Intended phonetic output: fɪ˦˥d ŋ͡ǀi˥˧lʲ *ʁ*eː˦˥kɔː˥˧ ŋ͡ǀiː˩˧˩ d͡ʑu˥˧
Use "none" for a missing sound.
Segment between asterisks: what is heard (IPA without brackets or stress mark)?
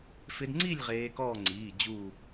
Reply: ʁ